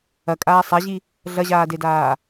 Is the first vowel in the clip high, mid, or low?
low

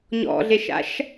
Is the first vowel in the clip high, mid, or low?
mid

